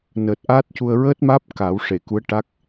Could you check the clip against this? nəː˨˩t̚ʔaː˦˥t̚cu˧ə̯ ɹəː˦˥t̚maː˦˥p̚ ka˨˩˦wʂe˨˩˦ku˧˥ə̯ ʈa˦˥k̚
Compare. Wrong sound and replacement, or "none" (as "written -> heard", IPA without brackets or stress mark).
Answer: e˨˩˦ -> e˨˩˨